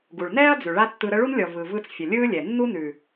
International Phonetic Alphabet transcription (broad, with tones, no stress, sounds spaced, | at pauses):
ɡ u˨ ɭ n ɛː˦ ɐ̯ d͡z ʉ˨ ɭ a˦ tː ɯ˧ ɾ ə˦ ɭ u˦ n lʲ ɔ˨ v ɯ˨ v ɯ˧ t͡s fʲ ə˨ lʲ ɯː˦ lʲ ɛ˨ nː u˦ n ʉ˨